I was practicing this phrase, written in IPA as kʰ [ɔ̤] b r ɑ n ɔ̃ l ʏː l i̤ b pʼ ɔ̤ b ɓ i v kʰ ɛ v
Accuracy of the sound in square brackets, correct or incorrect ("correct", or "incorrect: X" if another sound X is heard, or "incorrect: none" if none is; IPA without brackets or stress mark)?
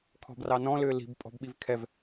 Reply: correct